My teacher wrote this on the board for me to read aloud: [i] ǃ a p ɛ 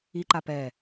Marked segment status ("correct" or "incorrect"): correct